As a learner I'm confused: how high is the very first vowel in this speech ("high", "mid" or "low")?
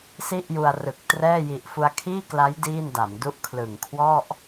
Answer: high